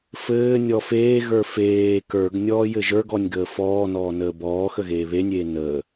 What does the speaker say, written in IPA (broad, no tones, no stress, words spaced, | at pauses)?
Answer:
fɘː nʲɔfeːɣə˞ feː kə˞ɡ nʲɔːjɘʒə˞ɡɔnʲ ɡəːfɔːnɔː nəːbɔːxə ɣeːβenʲeː nəː